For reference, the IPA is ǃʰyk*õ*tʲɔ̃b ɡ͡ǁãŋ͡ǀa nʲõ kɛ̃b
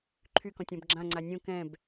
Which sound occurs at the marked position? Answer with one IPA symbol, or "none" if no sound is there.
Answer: ɔ̃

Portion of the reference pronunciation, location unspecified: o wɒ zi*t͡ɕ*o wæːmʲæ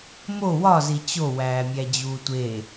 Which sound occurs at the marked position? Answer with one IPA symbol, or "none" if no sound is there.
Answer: t͡ɕ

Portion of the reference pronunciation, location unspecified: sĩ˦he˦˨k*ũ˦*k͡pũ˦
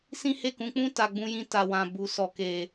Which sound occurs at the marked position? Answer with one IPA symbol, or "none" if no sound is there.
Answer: ũ˨˦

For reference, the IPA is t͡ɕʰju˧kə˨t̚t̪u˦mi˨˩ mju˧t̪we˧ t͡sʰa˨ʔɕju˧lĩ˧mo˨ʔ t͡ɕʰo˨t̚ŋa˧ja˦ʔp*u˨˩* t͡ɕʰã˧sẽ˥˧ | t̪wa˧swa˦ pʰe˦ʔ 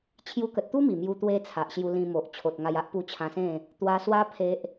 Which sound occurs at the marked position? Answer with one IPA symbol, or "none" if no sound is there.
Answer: u˧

